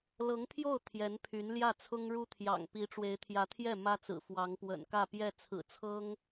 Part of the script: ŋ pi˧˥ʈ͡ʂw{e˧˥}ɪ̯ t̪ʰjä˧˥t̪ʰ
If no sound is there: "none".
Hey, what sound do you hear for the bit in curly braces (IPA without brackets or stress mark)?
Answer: e˧˥